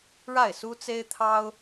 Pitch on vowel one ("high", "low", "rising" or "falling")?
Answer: falling